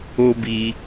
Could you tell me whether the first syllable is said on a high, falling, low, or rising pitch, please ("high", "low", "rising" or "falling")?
high